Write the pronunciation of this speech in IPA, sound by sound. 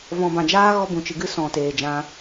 vɔ̃˨bã˨d͡ʒaː˦ ɣɔ˦bũ˨t͡ʃɨ˨ɡɨ˦ sɔ̃˨ teː˨d͡ʒã˧

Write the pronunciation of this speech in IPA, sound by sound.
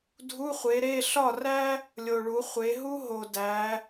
dʱu˧˥˧χʷe˨˦ ɾe˧˥˧ ɬɒ˥˨ræ˥ | lʲo˨ɭu˨˦χʷe˨˦ ɦu˥ ɦo˨dæ˨˦

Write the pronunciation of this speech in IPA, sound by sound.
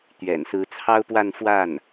t̪ɥɛ̰˨˩n sɹ̩˧˥t͡sʰɑ˥ʊ̯pwa˥˧n fwa˥˩n

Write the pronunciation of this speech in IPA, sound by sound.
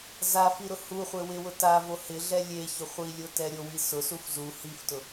zafiɾʊ huχʷe wɪwʊ tavo hɪɮɛ lʲeçʊ χʷilʲotɛ ɾʲowi sʊsuf zu hiftʊ

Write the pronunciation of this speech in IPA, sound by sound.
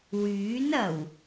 wyː˨˥nɐ˨˩w

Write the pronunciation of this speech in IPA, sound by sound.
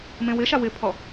mẽwɪʃa wɪpʰɔ

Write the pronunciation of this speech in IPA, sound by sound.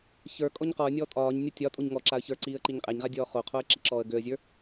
çə˞ kʼɔɲqɔə̯nʲɔː tʼɒːɲnʲɒ tʲɒ tʼoɲŋɔǁaə̯ çə˞ǀiːə̯ ǃiɲqʼɛɲʁa dʲɔːχoqʰoə̯ ǁiǁɔːə̯ɡøə̯zʲə˞

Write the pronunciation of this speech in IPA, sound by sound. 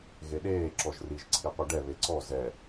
ɣeɗeː ǁɔʒriʒ ǀʰiqʷiɖɛ βeǀɔ zɛ

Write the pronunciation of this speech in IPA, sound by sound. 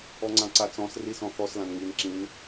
ɔŋ͡ǀãǀat͡sɔ̃s risɔ̃θɔs lãnŋin ǁĩn

